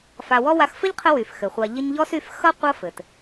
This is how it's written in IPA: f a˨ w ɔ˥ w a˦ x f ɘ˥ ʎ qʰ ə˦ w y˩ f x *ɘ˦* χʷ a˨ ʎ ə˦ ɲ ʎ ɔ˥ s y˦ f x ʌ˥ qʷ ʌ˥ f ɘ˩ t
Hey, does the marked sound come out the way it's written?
no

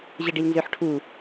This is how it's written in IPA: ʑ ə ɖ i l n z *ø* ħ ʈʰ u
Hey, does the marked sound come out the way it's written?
yes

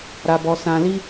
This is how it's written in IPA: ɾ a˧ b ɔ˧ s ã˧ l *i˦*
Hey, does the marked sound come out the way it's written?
yes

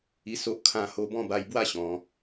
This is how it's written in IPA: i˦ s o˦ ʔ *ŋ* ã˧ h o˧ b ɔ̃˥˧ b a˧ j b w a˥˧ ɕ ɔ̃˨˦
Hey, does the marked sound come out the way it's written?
no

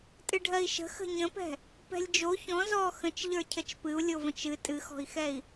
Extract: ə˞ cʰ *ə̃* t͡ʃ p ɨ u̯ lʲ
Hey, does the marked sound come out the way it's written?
no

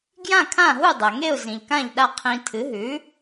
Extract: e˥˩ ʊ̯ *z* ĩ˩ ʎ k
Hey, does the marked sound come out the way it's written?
yes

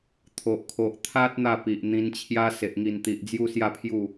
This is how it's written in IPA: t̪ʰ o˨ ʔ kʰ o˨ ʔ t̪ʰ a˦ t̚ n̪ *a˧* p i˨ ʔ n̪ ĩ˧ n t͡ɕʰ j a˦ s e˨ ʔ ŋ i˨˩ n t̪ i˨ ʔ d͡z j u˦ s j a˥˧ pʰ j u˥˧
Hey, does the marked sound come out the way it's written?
no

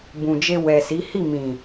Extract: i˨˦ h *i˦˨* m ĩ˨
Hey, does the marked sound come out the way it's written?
yes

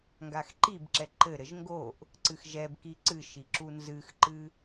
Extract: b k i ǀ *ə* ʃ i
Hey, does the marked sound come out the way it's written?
no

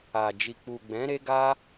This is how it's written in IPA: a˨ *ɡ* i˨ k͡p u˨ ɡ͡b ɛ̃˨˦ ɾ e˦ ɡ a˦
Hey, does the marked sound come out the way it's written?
no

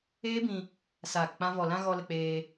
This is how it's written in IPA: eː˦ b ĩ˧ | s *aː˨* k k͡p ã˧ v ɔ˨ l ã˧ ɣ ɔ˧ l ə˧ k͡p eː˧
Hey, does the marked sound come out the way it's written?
yes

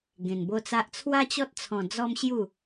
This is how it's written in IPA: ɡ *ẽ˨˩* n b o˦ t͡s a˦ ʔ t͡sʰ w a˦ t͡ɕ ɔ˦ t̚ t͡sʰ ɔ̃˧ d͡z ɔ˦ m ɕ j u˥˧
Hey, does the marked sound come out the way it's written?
no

